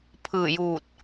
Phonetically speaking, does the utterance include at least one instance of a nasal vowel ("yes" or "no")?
no